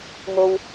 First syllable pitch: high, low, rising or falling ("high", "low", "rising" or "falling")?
low